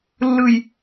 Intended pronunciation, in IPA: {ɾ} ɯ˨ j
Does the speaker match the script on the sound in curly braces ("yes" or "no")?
no